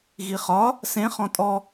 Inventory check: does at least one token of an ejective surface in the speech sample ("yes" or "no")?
yes